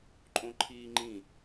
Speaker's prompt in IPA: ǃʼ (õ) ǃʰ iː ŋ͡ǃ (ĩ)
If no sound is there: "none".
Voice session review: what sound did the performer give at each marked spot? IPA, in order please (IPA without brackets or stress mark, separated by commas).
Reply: õ, ĩ